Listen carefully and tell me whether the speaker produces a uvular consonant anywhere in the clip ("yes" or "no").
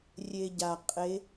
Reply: yes